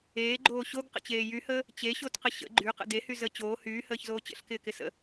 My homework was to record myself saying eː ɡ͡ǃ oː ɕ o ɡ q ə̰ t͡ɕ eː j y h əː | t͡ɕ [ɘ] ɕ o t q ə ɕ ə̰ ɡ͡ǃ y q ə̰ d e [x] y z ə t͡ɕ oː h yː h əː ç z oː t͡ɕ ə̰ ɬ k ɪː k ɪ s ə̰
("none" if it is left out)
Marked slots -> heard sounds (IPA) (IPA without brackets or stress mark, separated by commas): e, h